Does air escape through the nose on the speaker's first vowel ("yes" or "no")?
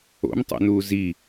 no